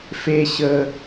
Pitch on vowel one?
high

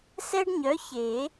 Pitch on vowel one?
high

